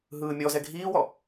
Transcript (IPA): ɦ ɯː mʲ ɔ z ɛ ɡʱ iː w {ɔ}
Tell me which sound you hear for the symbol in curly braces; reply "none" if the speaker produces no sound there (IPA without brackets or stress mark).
ɔ